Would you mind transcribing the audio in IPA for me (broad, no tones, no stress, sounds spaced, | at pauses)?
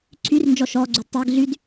ǀʰ y r n d͡ʒ ɔ ʃ ɔ ɡ͡ǀ y d tˤ e ɡ ɮ y d